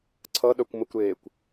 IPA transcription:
ǀʰ ʌ ɗ œ kʷ m ə kʷ ɾ eː kʷ

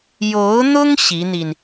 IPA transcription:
j o˧˥ ʊ̯ n̪ ʊ˥ ŋ ɕ i˧˥ n̪ i˧ n

